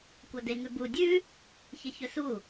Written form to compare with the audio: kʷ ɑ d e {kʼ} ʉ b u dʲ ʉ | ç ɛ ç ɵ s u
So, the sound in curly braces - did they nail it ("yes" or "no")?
no